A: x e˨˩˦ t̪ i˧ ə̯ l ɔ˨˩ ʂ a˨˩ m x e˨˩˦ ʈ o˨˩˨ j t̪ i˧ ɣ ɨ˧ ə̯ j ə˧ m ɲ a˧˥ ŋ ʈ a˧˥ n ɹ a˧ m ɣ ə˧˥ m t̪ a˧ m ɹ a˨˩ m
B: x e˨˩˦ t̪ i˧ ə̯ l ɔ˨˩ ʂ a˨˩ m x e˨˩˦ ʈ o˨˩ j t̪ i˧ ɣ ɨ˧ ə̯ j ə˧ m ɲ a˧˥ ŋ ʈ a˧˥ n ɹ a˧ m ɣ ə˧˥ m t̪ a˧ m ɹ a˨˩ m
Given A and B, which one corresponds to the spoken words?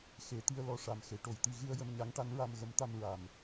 A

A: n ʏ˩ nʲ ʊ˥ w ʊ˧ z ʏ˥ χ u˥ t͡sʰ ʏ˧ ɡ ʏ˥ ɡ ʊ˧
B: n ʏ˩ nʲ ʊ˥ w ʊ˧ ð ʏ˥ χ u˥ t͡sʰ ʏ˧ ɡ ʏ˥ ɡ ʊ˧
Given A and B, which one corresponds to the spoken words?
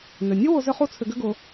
A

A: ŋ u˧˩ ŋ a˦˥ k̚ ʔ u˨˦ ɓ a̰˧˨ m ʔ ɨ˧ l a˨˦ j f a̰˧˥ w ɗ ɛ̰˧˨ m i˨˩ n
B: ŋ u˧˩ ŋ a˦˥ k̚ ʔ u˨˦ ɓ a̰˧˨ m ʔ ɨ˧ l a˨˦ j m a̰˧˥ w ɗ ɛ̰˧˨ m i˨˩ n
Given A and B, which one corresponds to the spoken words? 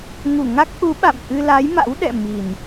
B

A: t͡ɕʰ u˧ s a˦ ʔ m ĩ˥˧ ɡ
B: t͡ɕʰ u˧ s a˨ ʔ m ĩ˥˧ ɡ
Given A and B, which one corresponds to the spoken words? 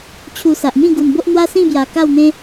B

